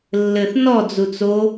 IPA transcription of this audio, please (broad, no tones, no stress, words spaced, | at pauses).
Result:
lːɘθ nɔ d͡zut͡so